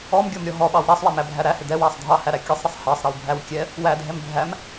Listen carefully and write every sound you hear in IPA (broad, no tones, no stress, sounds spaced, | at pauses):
ɔ m ɡʲ ɔ m ɾʲ ɔ ɦ ɔ ɓ ɑ w ɾ æ sˤ w æ m æ bʱ æ ɾ æ h ɪ d ɛ w æ sˤ dʱ ɑ h æ ɾ æ kʲ ʌ sˤ ɾ ɪ sˤ h ɑ sˤ ɾ ɛ w bʱ æ w kʲ ɛ | w æ dʱ ɛ m bʱ æ m